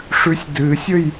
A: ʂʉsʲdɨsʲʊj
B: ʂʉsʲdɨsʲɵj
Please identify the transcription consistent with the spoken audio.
B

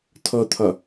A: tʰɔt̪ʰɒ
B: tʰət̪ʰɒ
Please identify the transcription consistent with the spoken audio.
A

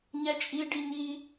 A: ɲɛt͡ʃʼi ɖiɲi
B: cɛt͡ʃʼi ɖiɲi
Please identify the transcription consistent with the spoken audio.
A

